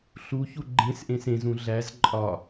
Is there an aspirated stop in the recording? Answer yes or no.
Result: no